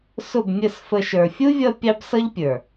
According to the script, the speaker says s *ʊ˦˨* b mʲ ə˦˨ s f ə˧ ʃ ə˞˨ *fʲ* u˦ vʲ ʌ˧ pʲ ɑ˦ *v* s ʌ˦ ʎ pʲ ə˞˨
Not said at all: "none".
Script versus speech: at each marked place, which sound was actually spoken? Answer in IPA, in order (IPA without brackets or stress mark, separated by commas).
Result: ʊ˦˨, fʲ, b